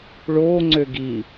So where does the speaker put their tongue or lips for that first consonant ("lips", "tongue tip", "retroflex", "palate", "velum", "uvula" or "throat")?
retroflex